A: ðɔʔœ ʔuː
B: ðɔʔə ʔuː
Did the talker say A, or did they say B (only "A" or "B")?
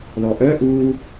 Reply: A